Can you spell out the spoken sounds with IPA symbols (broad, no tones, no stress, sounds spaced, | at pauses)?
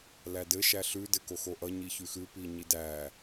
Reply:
l æ d ɘ ʃ æ ɬ ʉ d ɘ k o x o ʔ ʌ ɲ i ç ʉ x ʉ p i ɲ i d æ